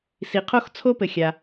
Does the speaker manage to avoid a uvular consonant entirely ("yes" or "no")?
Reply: no